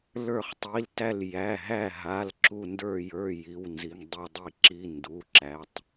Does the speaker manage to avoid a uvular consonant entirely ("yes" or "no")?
no